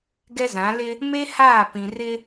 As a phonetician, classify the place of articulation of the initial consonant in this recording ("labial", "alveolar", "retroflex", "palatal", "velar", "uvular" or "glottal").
velar